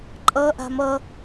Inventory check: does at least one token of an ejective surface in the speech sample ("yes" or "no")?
yes